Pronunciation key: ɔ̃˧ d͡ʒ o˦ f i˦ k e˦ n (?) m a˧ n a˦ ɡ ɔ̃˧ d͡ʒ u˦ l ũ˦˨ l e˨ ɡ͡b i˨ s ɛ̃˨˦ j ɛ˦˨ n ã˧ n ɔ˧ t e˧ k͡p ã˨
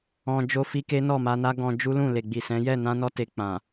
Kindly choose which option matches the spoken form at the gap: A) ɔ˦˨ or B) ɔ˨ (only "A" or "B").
A